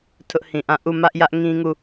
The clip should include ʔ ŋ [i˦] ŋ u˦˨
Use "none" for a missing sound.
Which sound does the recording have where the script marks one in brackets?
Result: ĩ˦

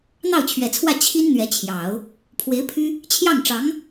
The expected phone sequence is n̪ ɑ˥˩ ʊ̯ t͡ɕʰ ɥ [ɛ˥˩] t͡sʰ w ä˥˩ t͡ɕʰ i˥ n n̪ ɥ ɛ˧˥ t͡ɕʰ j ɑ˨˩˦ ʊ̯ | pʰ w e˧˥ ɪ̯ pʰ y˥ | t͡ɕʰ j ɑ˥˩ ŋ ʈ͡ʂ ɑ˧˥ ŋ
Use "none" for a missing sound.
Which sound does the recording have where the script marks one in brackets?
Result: ɛ˨˩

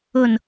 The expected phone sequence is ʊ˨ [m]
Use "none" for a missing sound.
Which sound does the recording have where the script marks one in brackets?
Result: n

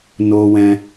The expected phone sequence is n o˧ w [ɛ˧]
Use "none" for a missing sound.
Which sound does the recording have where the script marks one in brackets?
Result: ɛ̃˧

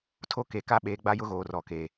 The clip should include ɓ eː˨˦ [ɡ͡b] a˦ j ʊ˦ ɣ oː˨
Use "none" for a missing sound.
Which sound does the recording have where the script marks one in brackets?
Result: ɡ͡b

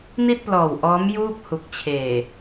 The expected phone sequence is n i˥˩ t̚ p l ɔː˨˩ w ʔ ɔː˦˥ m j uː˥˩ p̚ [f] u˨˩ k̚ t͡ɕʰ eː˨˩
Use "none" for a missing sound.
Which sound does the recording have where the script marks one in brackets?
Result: h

